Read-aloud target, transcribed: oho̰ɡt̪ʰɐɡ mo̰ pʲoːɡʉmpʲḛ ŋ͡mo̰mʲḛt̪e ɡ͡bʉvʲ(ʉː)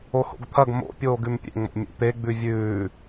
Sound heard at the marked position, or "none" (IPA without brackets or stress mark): ʉː